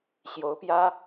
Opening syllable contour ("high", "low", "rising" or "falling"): rising